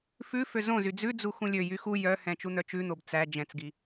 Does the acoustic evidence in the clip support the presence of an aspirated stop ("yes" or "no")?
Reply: no